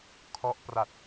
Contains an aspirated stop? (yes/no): yes